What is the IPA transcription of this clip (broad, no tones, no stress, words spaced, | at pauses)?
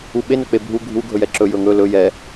uɓe nɵk͡pebʱu ɡʱu ɡʱɵjɛǁɵ jɵŋɵ lɵ jɛ